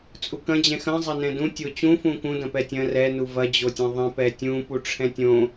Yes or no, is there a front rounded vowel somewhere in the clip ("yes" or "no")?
no